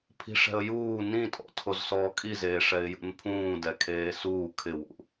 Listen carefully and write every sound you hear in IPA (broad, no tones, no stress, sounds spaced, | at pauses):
pʰ i̤ ʂ ɛ̤ ə̯ j uː n ĩ tʼ ɔ̰ tʰ o z s ɔː kʼ i z eː ʂ ɛ ɪ̯ j ṵ n pʰ ũː d ɛ kʰ eː s uː kʰ ɪ w ṵ